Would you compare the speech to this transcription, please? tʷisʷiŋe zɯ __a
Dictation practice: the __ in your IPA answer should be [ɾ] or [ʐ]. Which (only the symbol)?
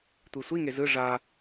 ʐ